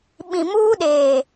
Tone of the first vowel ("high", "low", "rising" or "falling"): low